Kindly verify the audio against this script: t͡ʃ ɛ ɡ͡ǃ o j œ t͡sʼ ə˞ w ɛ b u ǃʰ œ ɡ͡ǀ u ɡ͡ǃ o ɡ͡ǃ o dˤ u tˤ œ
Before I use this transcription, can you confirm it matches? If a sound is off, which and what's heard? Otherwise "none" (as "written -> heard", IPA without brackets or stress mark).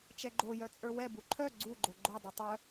none